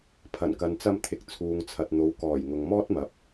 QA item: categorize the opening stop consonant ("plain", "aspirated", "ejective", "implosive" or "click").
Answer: aspirated